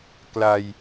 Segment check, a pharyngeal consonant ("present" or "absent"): absent